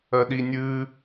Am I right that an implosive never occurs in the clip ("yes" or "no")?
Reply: no